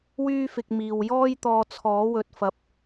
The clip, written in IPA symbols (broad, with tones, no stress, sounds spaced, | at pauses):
w yː˥ f ɪ˧ k̚ m iː˨ w j ɔː˥ j t̪ ɔː˧ t͡sʰ ɔː˨˥ w ɵ˨ t̚ f ɐ˨˥ p̚